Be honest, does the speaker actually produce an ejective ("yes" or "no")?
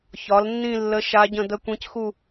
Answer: no